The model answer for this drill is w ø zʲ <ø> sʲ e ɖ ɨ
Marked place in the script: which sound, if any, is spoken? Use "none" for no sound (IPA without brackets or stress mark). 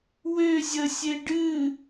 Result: ə